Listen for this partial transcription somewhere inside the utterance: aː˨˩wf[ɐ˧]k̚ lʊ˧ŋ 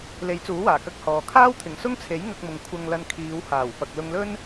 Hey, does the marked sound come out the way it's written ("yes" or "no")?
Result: no